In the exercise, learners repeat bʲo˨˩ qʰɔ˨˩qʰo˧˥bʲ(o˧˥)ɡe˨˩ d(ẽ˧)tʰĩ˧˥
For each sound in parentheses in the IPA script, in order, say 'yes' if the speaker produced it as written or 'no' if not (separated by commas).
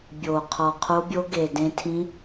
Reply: yes, yes